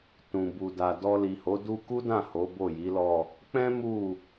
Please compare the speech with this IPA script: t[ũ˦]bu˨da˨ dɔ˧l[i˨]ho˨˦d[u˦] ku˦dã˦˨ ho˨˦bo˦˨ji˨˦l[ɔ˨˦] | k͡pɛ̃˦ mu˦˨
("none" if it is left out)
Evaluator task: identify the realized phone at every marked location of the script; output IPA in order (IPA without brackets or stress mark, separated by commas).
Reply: ũ˨, i˨, u˦, ɔ˦˨